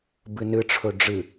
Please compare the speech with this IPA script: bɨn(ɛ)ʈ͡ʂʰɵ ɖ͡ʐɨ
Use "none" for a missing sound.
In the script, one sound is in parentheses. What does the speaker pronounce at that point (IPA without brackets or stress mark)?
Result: ɨ